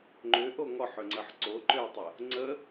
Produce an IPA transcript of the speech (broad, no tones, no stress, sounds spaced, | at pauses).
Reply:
ŋ͡ǃ ʏ ʔ o ŋ ɔ ħ ʏ ŋ͡ǀ ə ħ ǀ o ǃ ʏ ə̯ tˤ ə | ŋ͡ǀ ə